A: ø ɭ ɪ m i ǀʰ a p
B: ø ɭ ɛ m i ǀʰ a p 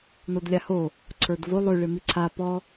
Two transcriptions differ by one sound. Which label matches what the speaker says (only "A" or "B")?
A